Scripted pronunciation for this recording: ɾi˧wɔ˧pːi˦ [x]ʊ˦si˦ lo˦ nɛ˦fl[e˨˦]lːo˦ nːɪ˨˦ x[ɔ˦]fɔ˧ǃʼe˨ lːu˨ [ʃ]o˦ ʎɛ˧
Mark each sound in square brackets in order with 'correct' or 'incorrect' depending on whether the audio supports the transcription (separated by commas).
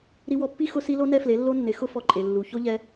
correct, correct, incorrect, incorrect